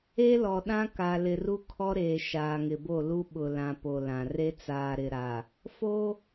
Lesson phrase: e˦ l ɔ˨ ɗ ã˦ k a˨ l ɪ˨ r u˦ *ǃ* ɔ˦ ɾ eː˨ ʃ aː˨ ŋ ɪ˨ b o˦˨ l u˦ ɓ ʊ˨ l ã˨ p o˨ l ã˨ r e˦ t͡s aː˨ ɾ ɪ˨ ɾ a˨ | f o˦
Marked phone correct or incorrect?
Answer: incorrect: kʰ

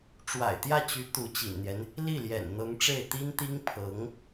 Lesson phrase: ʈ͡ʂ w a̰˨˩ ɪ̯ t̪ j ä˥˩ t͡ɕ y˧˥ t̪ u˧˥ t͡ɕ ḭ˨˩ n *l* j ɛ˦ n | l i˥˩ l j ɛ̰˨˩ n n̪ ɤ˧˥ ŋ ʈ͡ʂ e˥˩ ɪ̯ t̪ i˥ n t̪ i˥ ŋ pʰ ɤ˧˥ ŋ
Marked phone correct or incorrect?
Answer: incorrect: n̪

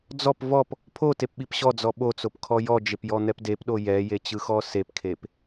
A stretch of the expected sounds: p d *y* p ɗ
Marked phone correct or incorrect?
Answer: incorrect: e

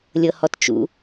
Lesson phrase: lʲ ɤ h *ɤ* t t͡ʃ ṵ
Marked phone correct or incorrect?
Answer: incorrect: ɔ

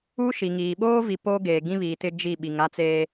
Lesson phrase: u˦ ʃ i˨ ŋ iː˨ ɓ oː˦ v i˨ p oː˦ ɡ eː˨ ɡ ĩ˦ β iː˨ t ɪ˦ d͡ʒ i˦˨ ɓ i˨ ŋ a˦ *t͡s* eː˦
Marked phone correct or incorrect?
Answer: correct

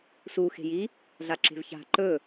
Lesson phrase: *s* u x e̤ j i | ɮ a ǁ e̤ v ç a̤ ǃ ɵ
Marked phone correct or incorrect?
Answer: correct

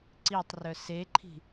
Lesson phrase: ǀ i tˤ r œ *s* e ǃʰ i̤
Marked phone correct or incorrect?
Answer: correct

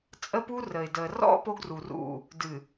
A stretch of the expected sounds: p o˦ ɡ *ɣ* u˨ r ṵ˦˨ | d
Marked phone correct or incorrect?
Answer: incorrect: r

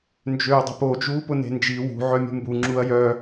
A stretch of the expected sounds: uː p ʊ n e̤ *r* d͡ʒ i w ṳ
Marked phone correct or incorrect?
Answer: incorrect: n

